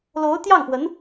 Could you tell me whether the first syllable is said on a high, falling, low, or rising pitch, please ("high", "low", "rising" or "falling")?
rising